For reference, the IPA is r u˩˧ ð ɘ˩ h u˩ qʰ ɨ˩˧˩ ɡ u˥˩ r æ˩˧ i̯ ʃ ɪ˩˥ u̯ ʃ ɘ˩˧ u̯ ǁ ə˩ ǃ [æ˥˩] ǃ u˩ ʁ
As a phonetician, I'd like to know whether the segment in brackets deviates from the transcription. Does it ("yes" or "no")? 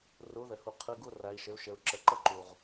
yes